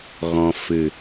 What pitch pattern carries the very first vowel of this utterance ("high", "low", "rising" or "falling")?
low